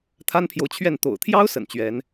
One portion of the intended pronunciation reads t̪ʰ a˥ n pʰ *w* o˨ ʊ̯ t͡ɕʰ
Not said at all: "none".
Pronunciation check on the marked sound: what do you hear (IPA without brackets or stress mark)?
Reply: j